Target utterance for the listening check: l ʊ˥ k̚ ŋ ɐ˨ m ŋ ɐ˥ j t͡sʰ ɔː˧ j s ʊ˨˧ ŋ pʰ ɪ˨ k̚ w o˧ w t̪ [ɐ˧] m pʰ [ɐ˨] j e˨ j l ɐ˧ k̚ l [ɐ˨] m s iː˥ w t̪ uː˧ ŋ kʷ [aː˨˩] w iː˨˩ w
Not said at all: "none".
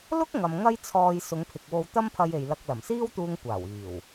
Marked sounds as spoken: ɐ˥, ɐ˧, ɐ˨˩, aː˨˩

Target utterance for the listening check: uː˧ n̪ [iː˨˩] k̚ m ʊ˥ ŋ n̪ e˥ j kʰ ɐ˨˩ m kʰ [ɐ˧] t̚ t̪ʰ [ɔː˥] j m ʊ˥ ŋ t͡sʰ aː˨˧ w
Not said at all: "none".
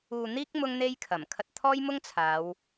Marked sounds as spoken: iː˥, ɐ˧, ɔː˥

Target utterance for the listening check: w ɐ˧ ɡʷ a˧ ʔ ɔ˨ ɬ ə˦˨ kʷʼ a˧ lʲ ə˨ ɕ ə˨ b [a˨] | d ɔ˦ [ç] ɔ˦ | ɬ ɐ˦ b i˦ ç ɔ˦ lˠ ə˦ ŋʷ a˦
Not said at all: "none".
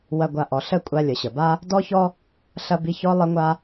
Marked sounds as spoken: a˦, ç

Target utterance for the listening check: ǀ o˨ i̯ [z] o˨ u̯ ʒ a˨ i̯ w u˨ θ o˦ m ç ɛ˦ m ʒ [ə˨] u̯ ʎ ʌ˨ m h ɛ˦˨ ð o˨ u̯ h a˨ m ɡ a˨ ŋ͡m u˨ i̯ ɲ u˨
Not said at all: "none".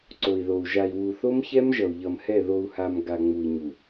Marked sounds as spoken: ð, ʌ˨

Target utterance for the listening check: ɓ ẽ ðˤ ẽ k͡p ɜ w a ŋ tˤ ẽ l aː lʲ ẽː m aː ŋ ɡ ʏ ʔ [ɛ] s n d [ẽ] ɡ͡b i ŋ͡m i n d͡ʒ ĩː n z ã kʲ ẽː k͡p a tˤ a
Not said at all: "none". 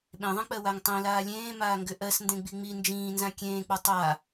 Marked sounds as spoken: ɜ, ẽ

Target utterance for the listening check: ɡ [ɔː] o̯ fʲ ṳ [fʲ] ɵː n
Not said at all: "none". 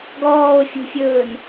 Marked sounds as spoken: ɔː, fʲ

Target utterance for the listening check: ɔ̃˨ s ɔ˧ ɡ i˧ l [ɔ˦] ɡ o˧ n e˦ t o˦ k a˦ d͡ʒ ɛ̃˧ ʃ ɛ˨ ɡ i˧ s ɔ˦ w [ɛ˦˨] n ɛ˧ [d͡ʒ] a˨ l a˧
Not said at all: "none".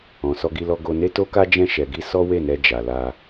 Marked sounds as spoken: ɔ˧, e˦˨, d͡ʒ

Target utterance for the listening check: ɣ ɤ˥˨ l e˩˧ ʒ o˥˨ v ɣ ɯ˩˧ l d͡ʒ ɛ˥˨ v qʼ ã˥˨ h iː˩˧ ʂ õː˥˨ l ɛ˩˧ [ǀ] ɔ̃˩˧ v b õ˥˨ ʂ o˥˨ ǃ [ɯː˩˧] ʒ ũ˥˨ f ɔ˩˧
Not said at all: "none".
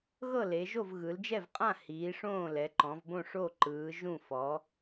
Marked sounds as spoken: ǃ, ɯː˩˧

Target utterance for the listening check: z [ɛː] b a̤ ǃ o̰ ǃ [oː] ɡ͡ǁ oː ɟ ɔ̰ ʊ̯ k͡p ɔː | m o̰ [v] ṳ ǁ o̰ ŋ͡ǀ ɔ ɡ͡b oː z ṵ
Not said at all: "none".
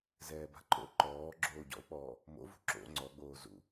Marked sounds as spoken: ɛː, ɔː, v

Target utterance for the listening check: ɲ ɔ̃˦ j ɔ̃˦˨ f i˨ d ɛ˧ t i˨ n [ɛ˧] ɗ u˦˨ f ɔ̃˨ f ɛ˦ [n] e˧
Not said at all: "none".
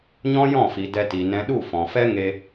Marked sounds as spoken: ɛ̃˧, ŋ

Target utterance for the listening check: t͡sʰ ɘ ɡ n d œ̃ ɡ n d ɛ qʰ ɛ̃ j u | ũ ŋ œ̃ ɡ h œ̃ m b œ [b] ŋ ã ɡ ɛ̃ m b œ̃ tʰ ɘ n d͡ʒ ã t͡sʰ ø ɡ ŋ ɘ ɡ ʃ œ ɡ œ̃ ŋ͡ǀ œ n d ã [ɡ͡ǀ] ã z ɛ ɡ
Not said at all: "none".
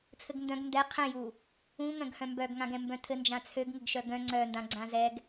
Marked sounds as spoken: ɡ, ɡ͡ǀ

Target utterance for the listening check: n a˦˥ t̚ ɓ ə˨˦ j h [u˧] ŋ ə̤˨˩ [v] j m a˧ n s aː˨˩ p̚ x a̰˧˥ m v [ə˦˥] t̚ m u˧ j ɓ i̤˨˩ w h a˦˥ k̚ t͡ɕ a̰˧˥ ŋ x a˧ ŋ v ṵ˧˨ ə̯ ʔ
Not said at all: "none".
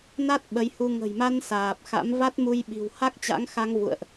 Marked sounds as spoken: u˧, none, a˦˥

